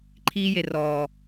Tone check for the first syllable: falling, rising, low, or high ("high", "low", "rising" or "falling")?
high